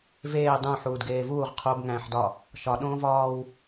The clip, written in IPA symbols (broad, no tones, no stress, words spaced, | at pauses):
veː dˤũ ħuːdɡeːvuːʁ qʰob ŋæ̃ːħdɒ | ʃɒ ɗõːvɒːw